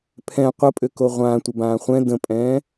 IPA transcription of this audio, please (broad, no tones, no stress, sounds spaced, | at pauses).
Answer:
pʰ ɛ̃ qʷ ə pʼ ʏ k o ʁʷ ãː tʷ ə b ãː χʷ ɛ̃ d ə̃ pʼ ɛ̃ː